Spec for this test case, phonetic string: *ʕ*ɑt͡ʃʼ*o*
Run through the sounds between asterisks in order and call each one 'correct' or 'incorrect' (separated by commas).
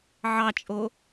correct, correct